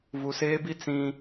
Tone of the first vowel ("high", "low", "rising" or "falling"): low